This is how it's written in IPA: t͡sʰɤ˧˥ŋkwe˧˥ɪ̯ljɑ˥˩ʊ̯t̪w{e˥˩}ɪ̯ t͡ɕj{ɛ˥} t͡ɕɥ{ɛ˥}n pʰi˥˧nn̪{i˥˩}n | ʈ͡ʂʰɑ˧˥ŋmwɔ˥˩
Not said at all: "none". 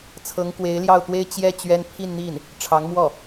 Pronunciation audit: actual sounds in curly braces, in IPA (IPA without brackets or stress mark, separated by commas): e˥, ɛ˥, ɛ˥, i˥˩